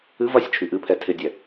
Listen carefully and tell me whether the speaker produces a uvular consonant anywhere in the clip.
no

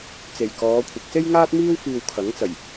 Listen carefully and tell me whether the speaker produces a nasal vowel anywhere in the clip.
no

